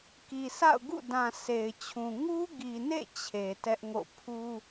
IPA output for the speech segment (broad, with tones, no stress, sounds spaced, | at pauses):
k i˨ s a̰˦˨ ʊ̯ ɡ ṵ˦˨ d ã˨ sʰ e˨ ɪ̯ t͡ɕʰ ũ˨ ŋ u˦ ɡ i˨ n ḛ˦˨ t͡ɕʰ e˨ t ɛ˦ ʔ ŋ o̰˦˨ pʰ u˦